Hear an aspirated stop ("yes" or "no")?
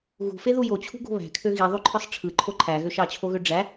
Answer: yes